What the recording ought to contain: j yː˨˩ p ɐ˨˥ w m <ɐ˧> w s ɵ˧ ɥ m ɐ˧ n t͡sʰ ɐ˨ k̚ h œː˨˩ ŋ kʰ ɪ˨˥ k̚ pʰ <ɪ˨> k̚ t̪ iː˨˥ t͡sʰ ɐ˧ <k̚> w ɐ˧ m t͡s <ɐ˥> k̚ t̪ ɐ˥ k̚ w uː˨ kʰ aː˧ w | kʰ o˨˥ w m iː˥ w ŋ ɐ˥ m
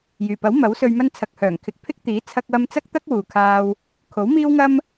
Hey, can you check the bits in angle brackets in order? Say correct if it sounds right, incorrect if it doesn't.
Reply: incorrect: ɐ˨˥, incorrect: ɪ˥, correct, correct

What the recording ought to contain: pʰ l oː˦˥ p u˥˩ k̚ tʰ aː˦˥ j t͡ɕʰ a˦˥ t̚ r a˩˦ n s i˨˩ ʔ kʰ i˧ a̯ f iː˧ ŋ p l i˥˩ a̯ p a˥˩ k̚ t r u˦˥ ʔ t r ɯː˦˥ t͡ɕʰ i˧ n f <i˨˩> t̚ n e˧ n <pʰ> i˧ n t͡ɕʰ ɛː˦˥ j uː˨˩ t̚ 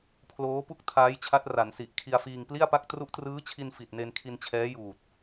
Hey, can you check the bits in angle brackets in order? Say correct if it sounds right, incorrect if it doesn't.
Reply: correct, incorrect: kʰ

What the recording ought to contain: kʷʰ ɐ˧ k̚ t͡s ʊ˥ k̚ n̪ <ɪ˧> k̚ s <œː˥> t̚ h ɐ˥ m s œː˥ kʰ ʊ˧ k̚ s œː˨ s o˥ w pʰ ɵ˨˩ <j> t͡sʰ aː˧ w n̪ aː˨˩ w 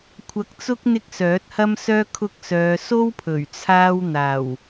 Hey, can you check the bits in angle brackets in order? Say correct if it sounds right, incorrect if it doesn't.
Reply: incorrect: ɪ˥, incorrect: œː˨˥, incorrect: ɥ

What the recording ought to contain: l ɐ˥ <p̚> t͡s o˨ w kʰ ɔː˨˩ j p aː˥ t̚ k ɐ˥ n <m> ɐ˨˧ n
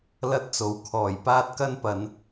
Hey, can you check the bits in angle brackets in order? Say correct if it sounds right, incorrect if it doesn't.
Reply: incorrect: t̚, incorrect: p

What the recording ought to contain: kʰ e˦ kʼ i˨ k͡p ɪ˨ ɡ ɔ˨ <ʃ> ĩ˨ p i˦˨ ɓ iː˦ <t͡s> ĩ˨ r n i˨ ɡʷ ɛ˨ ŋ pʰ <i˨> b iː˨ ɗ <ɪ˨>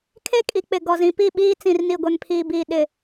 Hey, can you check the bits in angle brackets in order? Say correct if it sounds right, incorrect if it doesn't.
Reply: incorrect: z, correct, incorrect: iː˨, correct

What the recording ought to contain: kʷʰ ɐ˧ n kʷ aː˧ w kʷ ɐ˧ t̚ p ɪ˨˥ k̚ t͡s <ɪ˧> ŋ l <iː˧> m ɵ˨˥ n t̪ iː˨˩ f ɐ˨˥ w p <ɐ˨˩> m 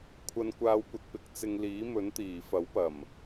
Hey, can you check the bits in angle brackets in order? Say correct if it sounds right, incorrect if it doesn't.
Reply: correct, incorrect: iː˨˥, correct

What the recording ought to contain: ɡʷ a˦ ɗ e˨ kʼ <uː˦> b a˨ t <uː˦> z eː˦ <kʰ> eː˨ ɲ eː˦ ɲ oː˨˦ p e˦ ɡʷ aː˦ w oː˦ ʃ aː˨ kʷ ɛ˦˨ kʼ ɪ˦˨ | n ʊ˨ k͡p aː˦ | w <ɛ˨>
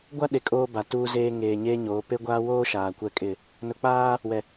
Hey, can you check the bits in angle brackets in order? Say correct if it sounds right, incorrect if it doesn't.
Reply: incorrect: oː˦, correct, incorrect: ŋ, correct

